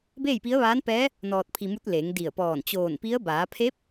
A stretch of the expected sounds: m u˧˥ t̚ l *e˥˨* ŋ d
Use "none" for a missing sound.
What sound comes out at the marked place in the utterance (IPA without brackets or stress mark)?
e˩˧